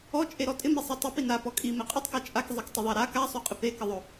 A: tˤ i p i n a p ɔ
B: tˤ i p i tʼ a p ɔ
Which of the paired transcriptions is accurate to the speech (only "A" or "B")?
A